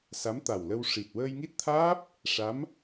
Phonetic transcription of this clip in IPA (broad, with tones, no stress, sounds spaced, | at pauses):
s a˧˥ m t̪ a˨˩ w l ə˧ w ʂ i˨˩ t̚ w əː˧ j ŋ i˦˥ t̚ t̪ʰ aː˦˥ p̚ | ʂ a˧˥ m